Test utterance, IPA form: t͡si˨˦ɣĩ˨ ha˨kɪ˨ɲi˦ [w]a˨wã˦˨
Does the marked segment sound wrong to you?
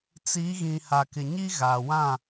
yes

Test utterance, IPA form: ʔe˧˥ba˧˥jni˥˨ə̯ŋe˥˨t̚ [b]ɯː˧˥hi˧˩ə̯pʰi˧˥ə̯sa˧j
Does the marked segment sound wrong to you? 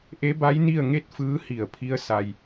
yes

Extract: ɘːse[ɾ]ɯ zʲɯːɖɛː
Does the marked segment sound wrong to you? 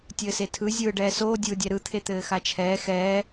yes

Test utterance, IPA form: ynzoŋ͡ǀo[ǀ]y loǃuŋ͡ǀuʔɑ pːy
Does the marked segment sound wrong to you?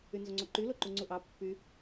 yes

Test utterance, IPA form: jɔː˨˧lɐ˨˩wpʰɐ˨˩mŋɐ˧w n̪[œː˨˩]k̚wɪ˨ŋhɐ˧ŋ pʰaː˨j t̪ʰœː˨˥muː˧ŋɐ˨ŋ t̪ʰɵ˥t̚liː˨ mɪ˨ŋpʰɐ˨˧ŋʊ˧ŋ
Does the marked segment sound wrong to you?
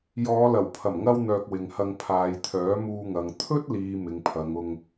yes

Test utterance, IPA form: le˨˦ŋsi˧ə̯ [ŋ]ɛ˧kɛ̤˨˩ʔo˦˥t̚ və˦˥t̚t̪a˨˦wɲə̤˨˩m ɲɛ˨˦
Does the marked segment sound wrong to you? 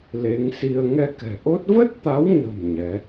no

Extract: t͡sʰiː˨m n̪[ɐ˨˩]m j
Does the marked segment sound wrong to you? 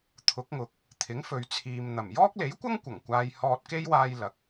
no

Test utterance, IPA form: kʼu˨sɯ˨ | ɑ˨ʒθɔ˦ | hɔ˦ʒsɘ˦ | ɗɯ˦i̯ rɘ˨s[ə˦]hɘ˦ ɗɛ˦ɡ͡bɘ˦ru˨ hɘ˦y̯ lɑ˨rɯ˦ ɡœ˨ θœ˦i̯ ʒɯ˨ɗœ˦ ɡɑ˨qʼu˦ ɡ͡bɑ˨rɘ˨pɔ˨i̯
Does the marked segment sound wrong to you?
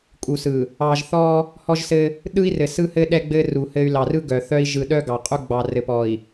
yes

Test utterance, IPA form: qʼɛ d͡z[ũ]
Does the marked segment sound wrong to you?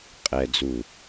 yes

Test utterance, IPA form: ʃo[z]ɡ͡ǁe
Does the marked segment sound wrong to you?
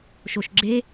yes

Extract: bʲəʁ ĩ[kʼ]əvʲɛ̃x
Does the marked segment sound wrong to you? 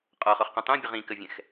yes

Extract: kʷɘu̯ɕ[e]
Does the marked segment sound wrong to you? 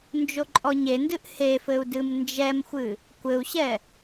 yes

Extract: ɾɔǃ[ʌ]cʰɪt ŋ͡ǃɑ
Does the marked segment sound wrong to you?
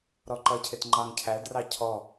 no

